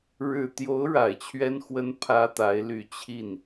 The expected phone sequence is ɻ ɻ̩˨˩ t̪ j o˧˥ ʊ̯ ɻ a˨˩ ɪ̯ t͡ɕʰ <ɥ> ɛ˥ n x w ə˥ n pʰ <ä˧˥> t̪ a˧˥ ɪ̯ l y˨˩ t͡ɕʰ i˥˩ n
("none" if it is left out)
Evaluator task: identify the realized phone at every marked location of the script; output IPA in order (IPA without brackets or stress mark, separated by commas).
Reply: ɥ, ä˥